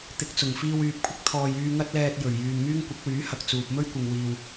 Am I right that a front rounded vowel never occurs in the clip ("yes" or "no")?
no